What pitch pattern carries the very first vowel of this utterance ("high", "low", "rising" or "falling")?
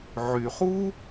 low